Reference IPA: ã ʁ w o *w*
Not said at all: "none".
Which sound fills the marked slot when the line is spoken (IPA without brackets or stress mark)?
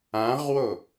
none